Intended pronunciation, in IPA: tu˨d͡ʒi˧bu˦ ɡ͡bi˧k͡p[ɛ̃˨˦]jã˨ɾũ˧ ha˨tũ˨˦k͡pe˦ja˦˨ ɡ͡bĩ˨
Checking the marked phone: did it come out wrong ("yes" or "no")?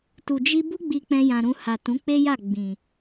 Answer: yes